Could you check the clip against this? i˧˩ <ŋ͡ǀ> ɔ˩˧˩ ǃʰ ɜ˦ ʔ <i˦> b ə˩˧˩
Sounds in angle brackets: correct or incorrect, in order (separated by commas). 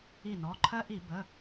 incorrect, incorrect